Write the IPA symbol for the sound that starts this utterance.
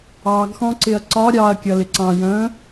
ɑ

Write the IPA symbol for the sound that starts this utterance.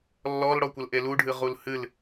lː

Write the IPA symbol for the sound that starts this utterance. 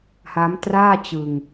h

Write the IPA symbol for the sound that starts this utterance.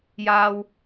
j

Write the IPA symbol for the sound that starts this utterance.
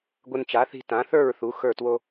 ɡʷ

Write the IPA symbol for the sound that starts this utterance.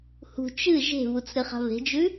h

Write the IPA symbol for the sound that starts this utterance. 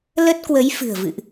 l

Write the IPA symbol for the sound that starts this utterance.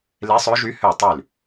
l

